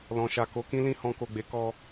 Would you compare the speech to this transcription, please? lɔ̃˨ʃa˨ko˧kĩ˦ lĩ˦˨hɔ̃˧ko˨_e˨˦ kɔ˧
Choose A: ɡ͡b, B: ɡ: A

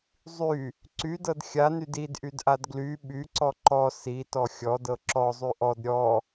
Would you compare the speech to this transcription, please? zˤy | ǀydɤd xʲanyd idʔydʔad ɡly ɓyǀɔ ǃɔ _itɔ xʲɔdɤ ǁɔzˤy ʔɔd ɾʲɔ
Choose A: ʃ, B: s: B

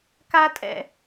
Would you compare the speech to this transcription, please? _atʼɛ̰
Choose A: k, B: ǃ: A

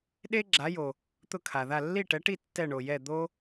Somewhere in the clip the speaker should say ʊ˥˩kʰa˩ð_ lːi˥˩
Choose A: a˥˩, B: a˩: A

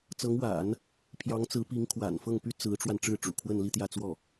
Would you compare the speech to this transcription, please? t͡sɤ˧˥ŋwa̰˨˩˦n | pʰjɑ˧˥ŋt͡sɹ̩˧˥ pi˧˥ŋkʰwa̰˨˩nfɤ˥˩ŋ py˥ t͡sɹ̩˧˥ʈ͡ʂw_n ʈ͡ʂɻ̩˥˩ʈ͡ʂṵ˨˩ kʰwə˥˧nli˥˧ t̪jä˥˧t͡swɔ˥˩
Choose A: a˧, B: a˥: A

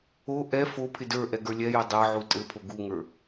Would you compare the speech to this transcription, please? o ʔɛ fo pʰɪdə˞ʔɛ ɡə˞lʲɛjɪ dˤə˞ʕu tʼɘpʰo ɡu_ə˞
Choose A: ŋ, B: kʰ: A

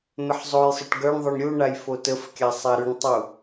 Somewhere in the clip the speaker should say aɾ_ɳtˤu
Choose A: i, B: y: B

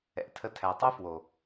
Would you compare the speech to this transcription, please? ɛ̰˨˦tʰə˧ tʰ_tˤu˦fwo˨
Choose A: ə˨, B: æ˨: B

